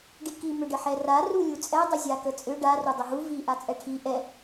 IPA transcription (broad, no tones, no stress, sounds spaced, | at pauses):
ɖ i k i m ʏ ɖ ə ħ ɛ r a r u lʲ u t͡sʼ ɛ dˤ ʏ zʲ a k ə t͡sʼ ʏ ɖ a r u dˤ ʏ ɦ u v i ʔ a t͡sʼ ɛ ʈʰ i ʔ ɛ